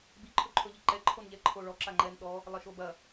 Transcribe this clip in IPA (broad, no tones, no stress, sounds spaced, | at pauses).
b i ǃʰ ɵ ǃʰ ɵ ʎ i ǃ ɛ ǃʰ o n ʎ ɛ ǃʰ o ɭ ɔ ǁ a ŋ͡ǃ ɛ n ɗ ɔ | lˠ ɐ ʃ o b ɐ